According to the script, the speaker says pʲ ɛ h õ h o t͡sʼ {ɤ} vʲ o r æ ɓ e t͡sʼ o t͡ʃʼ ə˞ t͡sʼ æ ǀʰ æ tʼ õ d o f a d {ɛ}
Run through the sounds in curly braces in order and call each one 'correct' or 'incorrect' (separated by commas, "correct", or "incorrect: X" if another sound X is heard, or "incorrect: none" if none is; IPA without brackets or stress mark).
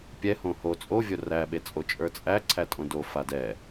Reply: incorrect: o, correct